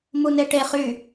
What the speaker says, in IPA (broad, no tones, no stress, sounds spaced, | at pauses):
m u n e ʈ e χ y